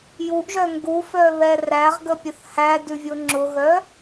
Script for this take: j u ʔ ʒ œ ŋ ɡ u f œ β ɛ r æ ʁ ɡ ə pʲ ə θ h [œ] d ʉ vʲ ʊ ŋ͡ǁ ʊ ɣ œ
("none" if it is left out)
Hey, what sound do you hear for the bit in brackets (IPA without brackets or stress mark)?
æ